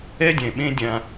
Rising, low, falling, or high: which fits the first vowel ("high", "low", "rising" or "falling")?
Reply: high